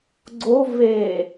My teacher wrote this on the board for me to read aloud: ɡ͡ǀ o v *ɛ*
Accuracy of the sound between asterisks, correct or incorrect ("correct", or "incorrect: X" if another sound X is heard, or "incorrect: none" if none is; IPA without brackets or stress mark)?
incorrect: e